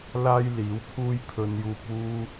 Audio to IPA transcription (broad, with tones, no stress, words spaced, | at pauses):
laː˥j liː˨˥wpʰuː˥j pʰɵ˧njuː˧p̚wuː˥